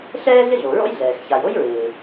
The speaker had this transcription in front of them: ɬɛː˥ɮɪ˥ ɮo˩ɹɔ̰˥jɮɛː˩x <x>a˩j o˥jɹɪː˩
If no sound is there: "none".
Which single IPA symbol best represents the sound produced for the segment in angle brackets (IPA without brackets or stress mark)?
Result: ç